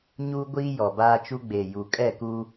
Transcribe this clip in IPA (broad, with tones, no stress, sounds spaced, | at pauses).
ɲ uː˦ ɡʷ iː˦ j ɔ˨ b aː˦ t͡ʃ u˦ ɡ͡b e˨ j u˨ kʼ ɛ˦˨ k uː˦